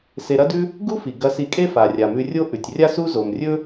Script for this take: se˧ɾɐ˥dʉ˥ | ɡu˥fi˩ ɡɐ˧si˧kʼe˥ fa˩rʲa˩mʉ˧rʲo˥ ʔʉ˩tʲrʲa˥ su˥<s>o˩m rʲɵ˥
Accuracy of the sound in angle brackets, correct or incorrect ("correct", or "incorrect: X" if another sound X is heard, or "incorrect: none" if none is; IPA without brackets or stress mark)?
incorrect: z